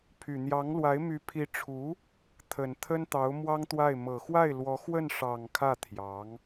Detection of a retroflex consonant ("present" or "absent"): present